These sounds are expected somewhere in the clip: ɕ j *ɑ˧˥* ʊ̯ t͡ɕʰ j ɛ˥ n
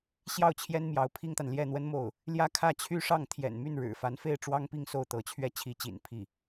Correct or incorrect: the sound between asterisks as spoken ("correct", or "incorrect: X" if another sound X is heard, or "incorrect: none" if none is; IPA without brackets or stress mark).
incorrect: ɑ˥˩